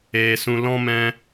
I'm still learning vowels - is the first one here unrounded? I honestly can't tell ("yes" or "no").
yes